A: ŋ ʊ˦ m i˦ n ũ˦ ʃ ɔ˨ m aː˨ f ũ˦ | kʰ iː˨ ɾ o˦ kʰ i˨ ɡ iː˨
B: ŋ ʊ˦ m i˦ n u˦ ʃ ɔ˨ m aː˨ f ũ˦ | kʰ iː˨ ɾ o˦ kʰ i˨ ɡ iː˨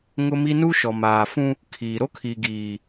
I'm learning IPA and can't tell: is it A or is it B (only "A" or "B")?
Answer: B